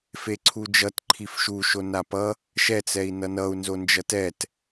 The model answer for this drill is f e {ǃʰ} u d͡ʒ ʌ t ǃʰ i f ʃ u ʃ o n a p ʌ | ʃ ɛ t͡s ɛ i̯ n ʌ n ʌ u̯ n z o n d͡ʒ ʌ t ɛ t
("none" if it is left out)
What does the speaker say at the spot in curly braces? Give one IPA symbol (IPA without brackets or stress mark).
ǀʰ